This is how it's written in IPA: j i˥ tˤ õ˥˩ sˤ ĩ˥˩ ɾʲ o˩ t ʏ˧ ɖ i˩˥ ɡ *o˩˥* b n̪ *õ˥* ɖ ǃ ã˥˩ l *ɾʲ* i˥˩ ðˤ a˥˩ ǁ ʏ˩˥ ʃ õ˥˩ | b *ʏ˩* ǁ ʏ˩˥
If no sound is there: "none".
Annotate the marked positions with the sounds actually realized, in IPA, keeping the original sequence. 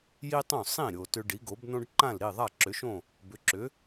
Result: o˩˥, õ˥, ɾ, ʏ˩˥

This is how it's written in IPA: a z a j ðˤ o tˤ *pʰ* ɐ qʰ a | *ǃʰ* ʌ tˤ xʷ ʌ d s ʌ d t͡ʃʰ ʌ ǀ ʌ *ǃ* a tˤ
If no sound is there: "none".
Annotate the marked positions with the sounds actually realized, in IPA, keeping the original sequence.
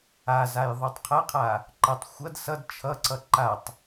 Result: qʰ, ǃ, ǃ

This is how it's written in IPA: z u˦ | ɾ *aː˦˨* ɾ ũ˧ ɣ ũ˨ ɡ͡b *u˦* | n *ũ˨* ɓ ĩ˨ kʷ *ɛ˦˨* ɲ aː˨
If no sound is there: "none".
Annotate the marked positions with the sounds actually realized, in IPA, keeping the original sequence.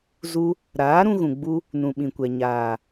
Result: aː˨˦, u˦, ũ˨, ɛ˨

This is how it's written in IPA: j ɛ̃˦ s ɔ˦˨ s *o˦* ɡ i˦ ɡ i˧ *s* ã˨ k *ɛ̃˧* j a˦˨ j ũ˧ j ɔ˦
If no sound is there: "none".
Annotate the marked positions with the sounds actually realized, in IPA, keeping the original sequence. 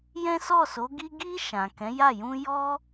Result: o˨˦, ʃ, ɛ̃˨˦

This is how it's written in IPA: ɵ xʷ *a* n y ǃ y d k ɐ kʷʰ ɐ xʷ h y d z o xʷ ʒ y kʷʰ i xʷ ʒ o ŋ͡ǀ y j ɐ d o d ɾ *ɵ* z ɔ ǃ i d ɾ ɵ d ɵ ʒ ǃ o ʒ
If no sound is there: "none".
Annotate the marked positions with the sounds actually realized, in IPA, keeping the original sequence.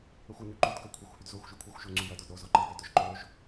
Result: ɐ, o

